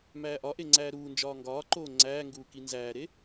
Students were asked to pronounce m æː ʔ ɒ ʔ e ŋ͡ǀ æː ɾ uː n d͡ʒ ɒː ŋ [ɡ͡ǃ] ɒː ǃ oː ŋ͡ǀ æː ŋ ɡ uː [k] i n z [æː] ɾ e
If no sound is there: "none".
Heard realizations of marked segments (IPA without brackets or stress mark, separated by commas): ɡ, k, æː